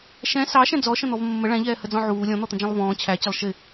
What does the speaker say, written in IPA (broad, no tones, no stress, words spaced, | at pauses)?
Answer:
ʃɛ̃ sɑʃɛ̃ d͡zɔʃə̃n̪ɔv mːə ɭæ̃ʎɛːhəd͡zɔ̃ ʕuː lʲɔ̃n̪ɔt̪ə̃d͡ʒɛ̃lˠ vɔ̃ː t͡ɕʰæt͡ɕɪlˠ ʃɪ